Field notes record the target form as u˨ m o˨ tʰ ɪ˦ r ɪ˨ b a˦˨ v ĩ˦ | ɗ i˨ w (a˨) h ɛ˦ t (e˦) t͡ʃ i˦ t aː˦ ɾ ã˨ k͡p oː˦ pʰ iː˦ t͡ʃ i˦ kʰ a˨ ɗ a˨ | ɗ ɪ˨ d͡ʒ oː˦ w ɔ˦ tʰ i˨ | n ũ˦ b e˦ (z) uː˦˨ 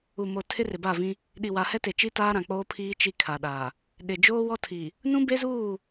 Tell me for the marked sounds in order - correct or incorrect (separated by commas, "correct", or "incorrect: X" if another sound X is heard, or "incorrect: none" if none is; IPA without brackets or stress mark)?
correct, incorrect: e˨, correct